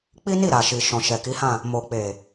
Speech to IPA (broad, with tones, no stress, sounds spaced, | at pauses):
k͡p i˦ n i˦˨ ɾ a˨ ʃ i˨ ʃ ɔ̃˨ ʃ ɛ˨ k i˨˦ h ã˦˨ | m o˨ k͡p e˨